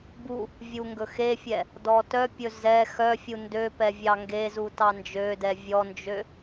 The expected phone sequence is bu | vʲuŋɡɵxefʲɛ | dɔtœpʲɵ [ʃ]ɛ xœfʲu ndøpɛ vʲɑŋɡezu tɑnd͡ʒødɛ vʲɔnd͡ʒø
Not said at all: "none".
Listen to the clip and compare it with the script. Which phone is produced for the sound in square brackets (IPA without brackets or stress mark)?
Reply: z